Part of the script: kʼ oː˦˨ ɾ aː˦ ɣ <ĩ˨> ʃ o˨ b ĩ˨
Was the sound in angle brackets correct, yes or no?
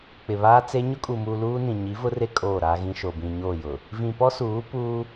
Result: no